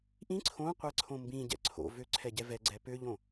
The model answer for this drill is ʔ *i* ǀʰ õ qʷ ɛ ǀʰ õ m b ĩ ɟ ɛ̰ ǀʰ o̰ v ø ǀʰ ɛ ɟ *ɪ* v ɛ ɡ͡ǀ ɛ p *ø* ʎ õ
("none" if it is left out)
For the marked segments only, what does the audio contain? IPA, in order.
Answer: ĩ, ɛ, ø

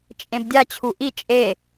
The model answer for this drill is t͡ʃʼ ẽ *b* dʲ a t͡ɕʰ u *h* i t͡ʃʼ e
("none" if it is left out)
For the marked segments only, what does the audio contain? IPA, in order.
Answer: b, ʔ

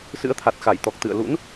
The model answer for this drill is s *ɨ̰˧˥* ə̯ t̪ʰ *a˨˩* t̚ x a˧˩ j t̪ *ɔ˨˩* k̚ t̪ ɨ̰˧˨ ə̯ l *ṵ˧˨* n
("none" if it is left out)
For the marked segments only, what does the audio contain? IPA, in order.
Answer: ɨ̰˧˥, a˨˩, ɔ˨˩, ṵ˧˥

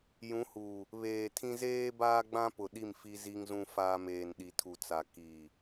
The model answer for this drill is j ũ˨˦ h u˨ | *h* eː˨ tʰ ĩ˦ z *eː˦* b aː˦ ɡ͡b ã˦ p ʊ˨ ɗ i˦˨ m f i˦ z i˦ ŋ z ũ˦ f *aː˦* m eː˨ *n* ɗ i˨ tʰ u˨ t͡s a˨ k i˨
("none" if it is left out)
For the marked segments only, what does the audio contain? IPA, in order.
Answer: β, eː˦, aː˦, n

